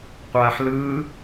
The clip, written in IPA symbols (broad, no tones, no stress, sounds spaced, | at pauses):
qʷ aː ħ l ɯː